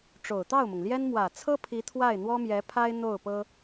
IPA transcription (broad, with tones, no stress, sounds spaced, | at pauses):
ʈ͡ʂ o˨˩ ʊ̯ t̪ ɑ˥˩ ʊ̯ m ʊ˩ ŋ l j ɛ˥ n m w ä˨˩ t͡sʰ ɤ˥ pʰ i˧˥ t̪ʰ w a˥˩ ɪ̯ n̪ w ɔ˥ m j ɛ˧˥ pʰ a˥ ɪ̯ n̪ o˥˩ ʊ̯ p ɤ˥